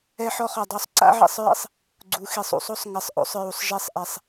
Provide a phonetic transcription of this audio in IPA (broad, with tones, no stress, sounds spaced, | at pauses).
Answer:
ɛ˦ ħ ɔ˦ χ ɔ˨ dˤ o˦ sˤ ǀ a̰˦ ʕ ḭ˨ sˤ ɹ ḭ˦ sˤ | ɡ͡ǀ u˨˦ x i˨ sˤ ṵ˦ sˤ o˦ sˤ ŋ ɪ˨˦ sˤ ʔ o̰˦ sˤ ɹ u˨ sˤ ʒ e˦ sˤ ʔ e˨ sˤ